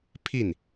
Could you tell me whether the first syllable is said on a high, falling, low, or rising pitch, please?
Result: falling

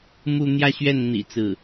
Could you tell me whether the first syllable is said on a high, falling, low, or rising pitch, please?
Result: falling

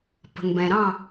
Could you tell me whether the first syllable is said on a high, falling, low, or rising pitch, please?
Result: low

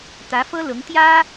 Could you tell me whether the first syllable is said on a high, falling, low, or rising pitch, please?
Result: rising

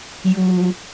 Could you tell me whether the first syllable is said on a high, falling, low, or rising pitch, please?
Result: high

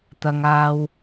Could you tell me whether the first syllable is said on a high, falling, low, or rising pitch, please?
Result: low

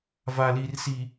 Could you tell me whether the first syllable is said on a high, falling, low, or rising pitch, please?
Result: low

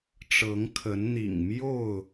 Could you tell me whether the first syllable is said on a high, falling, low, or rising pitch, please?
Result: rising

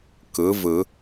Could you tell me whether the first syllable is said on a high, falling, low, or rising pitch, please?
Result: rising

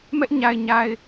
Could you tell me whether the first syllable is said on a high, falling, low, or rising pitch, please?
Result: high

